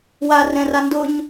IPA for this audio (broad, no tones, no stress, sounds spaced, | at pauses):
w a r ɛ̃ r a n d ʊ ɲ